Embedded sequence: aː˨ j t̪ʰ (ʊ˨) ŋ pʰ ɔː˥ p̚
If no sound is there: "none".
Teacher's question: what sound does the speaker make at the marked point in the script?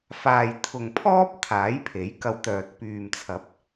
ʊ˨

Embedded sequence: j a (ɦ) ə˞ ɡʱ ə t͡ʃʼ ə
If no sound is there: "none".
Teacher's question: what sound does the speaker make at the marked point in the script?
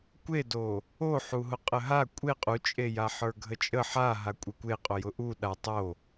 ħ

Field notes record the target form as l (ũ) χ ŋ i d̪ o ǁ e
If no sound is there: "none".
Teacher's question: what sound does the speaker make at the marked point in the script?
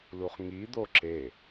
u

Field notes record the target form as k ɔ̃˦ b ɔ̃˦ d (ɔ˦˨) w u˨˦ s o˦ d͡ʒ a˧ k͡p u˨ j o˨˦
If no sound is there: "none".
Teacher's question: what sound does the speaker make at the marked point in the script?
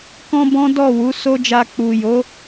ɔ˦˨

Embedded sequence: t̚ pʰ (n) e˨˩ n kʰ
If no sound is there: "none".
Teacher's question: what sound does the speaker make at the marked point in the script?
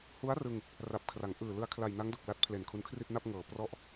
l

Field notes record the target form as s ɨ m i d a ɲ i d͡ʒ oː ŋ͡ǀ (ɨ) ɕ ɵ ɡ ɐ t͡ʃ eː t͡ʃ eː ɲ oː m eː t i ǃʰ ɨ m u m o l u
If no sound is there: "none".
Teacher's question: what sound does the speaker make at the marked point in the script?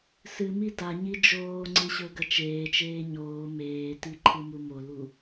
ɨ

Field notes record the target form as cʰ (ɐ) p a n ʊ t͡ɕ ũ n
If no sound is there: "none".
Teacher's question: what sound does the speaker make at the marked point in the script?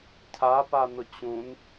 a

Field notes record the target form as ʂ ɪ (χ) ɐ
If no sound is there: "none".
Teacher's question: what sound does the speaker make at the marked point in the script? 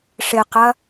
q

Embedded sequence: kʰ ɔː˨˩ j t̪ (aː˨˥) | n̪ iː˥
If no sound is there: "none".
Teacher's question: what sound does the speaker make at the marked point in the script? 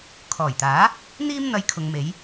aː˨˥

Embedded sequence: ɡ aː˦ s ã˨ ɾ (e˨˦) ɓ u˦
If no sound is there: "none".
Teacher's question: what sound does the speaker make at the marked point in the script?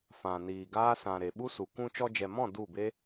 e˨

